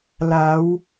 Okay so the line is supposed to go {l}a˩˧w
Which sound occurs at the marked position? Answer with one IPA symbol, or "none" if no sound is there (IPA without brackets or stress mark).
l